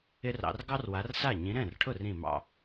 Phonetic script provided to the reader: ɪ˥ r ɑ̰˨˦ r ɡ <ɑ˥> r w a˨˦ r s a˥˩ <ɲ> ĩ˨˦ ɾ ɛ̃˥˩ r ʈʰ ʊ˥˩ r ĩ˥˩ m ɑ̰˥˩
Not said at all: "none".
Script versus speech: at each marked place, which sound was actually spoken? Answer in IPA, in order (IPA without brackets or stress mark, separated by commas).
ɑ˥, ɲ